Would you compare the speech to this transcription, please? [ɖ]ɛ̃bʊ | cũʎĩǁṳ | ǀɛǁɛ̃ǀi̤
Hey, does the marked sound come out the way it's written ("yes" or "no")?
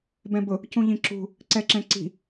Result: no